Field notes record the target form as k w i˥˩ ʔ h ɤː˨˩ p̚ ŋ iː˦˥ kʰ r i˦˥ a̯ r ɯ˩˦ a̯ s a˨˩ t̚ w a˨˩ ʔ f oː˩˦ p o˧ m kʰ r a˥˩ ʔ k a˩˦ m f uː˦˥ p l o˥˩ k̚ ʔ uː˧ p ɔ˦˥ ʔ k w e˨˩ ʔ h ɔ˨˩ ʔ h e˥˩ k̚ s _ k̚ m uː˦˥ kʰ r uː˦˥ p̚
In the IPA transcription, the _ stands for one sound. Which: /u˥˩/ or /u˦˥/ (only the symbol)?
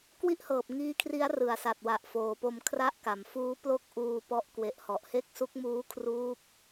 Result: u˦˥